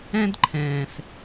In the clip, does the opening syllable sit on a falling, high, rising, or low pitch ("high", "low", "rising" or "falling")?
high